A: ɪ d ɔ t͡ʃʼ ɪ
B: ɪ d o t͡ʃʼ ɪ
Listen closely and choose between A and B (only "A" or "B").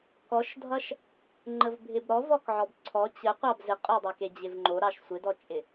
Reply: A